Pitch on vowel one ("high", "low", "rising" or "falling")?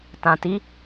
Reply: low